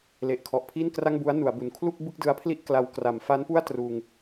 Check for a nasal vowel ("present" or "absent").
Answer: absent